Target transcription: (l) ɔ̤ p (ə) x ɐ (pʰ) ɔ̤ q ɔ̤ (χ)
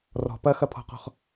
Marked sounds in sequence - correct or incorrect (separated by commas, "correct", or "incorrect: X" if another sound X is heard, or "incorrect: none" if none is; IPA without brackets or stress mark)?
incorrect: r, incorrect: ɐ, correct, correct